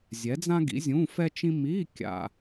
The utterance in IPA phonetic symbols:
zʲ ɛ˨˥ d͡z ã˥ ɡ ḭ˨˥ zʲ ũ˧˥˧ f ɛ˥ t͡ʃ ĩ˥ m i˧˥˧ kʲ a̰˨

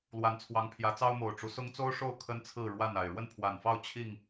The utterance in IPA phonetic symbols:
l w a˨˦ n t͡sʰ w ɑ˨˦ ŋ pʰ j ä˨˦ t͡s ɑ˦ ʊ̯ m o˨˩ ʊ̯ ʈ͡ʂ u˦ s ʊ˦ ŋ t͡s o˦ ʊ̯ ʂ o˥˨ ʊ̯ kʰ ə˦ n t͡sʰ ɹ̩˥˨ ɻ w a˥˨ n a˨˩ ɪ̯ ɻ w ə˥˨ n pʰ w a˨˩ n f ɑ˥˨ ʊ̯ t͡ɕʰ i˥˨ ŋ

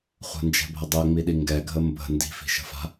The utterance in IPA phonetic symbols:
χʷ ə̤ n d͡ʒ ɛ̤ bʱ ə dˤ ɛ ŋ͡m i ɗ i ŋ ɡ ɛ ɡʱ ə m b ə̤ n d i̤ f i̤ ʃ ə̤ f a̤

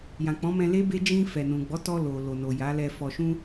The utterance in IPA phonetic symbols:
j ã˨ k͡p ɔ̃˨˦ m ɛ̃˧ l e˦ b e˦ d͡ʒ ĩ˧ f ɛ˨ n ũ˨ ɡ͡b ɔ˨˦ t ɔ˧ l o˨ l o˨ n o˨ j a˨˦ l ɛ˧ f ɔ˨ ʃ ũ˧

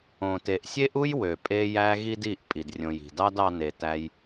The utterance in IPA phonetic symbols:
õ˨ t e˨ ʔ sʲ e˦ ʔ u˦ j w ø˨ pʼ e˧ j æ˧ ɣ i˦ d i˦˨ ʔ pʼ i˨ d rʲ õ˨ j i̤˨ d ɑ˦ d ɑ˦ n e˧ t æ˧ j

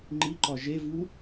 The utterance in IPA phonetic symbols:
ŋ͡ǃ i ǃ ɒ ʒ e v u

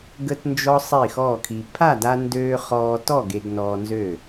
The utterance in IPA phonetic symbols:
ɡ ə˧ t n d͡ʒ ɔ˧ sˤ i˥˨ x ɔː˥˨ kʰ i˧ pʰ a˥˨ d a˧ n d øː˧ χ ɔː˧ t ɔ˥˨ ɡ e˧ ɡ n ɔː˧ n z ø˥˨

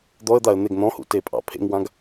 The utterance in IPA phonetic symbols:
d̪ ɔ ə̯ d̪ a ə̯ n̪ e ɡ n̪ ɔ̃ h ṵ t e pʼ ɑ̰ pʰ ḛ ŋ w ã ɡ

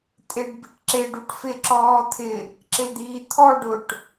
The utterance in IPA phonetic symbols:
tʼ e ɖ b i ʈ ǁ e ɖ u ʈ f ɪ ǁ ɔː t̪ʰ ɪ | ǁ ɪ l d̪ iː t̪ʰ ɔ ɖ ʊ ʈ

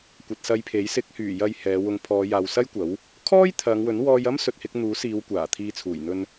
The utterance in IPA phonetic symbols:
kʷ ɐ˨ t̚ s ɐ˧ j pʰ e˨˥ j s ɪ˨˥ k̚ h yː˨˩ j ɐ˨ j h ɛː˨˧ w ʊ˨˧ ŋ pʰ ɔː˨˧ j aː˨ w s ɐ˥ j kʷ ɐ˨˥ w | kʰ ɔː˥ j t̪ʰ ɐ˨˧ ŋ w ɵ˨˥ n w ɔː˧ j ɐ˥ m s ɵ˨ t̚ h ɪ˧ k̚ n̪ uː˨˥ s iː˨˧ w kʷ aː˨˩ t̪ʰ iː˨ t͡sʰ uː˨˩ j n̪ ɵ˧ n

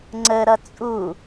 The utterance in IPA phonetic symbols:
ŋ͡ǀ ə ɾ ʌ t͡sʼ u

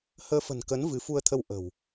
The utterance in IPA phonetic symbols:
h əː˧ f ə̤˨˩ n k ə˨˦ n v ɨ˨˦ f u˧ ə̯ t̪ʰ ə˧ w ʔ ə̤˨˩ w

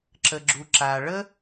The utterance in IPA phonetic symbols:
ǁ ə˩ ɡ͡ǁ u˩ ǁ a˩ ɭ ə˥

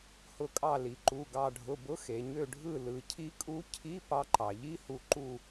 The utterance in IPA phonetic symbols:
h ʊ˧˩ kʼ ɑ˧˩ l i˩ ǃ u˩˧˩ ɡ ɑ˧˩ ɖʱ ʊ˩˧˩ b ʊ˧˥ x e˩ ɲ ø˧˩ ɖʱ ɯ˧˩ l ɯ˩ cʰ i˧˥ kʼ u˧˥ cʰ i˧˥˧ p ɑ˧ ǃ ɑ˩ ʎ i˧˥˧ h u˧˩ ǃ u˧˩

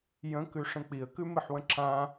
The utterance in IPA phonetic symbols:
j ə̃ k ʉ ʂ ə̃ k͡p i ə̯ k ʉ m ɨ ħ w ə̃ ǁ ã

